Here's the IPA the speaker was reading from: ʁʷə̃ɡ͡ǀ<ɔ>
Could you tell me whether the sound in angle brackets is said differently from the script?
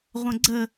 yes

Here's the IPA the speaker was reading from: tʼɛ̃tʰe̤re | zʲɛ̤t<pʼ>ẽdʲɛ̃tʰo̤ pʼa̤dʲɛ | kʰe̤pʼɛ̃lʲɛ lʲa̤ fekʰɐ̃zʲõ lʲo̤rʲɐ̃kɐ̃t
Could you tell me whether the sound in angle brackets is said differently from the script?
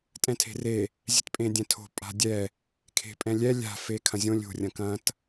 no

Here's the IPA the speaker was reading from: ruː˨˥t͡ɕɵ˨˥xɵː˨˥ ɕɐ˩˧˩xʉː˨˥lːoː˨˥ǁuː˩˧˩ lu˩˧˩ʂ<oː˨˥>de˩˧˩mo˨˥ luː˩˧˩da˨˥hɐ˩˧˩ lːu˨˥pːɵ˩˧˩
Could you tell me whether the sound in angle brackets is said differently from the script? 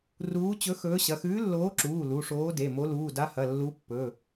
no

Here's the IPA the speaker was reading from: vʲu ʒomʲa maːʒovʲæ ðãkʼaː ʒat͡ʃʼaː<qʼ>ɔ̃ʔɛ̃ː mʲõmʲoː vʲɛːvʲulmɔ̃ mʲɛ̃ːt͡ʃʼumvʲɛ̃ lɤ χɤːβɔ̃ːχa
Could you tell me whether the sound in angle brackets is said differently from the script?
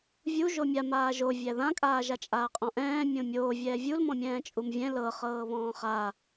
no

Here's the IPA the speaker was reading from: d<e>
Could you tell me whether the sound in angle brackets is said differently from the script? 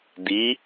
yes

